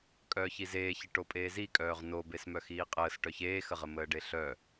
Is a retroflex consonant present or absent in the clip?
present